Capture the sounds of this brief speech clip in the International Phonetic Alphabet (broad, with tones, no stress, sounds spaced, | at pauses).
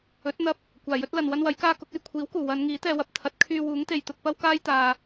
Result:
ɵ˨˥ t̚ n̪ ɐ˧ p̚ | kʷ aː˨˩ j ɵ˥ t̚ l ɐ˨ n w ɐ˥ n w ɐ˨˥ j k aː˥ k ʊ˨˥ k̚ ɐ˧ j kʷʰ iː˨˥ w k uː˨˩ w ɐ˨˧ n ŋ iː˨˥ t̪ ɛː˧ w ɐ˨˥ p̚ t̪ʰ ɐ˨˥ t̚ kʰ yː˧ w uː˨˥ ŋ t̪ e˨ j t̪ ʊ˧ k̚ p ɐ˥ w k aː˥ j t̪ aː˨